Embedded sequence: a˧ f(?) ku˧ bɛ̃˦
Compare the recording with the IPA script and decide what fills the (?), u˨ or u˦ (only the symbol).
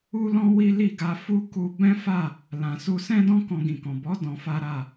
u˦